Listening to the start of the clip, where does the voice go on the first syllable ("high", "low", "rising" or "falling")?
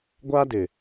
high